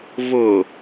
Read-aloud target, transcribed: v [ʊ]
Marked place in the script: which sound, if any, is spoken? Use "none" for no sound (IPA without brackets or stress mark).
ʊ